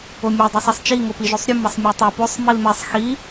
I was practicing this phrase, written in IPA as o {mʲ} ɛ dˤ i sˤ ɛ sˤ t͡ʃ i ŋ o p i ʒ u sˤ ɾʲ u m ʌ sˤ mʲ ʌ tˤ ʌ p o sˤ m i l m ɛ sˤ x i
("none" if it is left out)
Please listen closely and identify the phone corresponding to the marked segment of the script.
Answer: mʲ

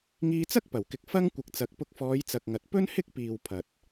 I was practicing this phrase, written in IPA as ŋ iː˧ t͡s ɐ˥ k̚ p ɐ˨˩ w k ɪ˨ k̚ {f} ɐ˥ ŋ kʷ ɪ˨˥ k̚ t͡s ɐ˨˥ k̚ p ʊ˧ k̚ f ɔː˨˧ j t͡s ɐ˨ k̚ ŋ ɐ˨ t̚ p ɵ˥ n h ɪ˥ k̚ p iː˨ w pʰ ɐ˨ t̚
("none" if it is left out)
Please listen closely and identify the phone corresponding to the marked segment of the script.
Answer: f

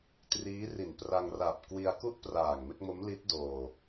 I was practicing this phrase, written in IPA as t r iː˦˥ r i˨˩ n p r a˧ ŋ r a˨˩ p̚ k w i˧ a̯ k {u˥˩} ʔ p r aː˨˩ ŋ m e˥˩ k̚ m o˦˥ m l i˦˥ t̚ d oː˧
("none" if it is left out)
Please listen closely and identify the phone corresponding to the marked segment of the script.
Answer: u˥˩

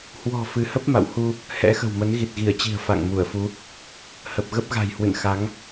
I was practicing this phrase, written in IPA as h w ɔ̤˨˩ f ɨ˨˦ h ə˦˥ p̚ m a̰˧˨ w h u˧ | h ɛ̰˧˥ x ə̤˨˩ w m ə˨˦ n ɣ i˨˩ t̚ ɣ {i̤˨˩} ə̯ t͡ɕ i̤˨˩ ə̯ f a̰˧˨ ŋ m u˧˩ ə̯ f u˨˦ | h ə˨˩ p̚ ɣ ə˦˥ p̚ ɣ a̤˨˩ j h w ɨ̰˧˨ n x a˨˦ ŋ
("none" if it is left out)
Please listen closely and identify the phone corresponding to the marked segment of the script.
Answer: i˧˩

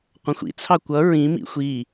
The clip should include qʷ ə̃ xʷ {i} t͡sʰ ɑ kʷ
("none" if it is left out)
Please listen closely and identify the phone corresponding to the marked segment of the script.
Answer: ḭ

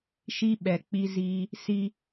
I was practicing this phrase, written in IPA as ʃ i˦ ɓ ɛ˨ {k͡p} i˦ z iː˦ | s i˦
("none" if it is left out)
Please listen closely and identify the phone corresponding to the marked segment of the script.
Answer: k͡p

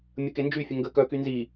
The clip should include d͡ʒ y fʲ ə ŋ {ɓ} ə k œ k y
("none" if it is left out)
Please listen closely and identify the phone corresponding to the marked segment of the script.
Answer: ɡ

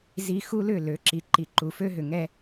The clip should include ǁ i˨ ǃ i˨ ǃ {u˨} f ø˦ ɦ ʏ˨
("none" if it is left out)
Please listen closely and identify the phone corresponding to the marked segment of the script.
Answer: u˨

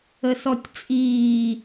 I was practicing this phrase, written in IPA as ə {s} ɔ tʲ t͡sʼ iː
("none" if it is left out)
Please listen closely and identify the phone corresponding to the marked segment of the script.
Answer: s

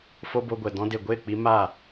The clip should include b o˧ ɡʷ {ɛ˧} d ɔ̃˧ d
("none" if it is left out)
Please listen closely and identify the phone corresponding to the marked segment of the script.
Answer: ɛ˨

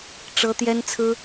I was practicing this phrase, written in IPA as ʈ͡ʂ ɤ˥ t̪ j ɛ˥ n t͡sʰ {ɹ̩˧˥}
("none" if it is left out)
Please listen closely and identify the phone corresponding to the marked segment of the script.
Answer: ɹ̩˥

